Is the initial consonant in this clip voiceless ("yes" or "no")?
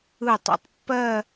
yes